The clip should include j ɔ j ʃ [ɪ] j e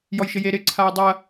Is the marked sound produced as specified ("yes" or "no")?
yes